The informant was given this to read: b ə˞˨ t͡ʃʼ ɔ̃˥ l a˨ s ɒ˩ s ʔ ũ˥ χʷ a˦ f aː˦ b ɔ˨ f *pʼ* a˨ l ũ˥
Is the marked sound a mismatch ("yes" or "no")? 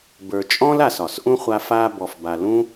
yes